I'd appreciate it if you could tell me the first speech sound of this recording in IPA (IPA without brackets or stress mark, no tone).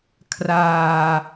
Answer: kʰ